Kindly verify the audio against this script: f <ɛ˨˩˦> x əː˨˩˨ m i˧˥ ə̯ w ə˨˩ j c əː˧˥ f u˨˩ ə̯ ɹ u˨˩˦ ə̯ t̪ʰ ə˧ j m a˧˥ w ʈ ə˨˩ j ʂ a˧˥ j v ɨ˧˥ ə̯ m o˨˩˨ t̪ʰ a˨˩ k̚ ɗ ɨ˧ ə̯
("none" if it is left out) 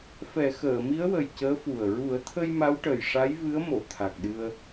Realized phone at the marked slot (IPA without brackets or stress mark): ɛ˨˩˦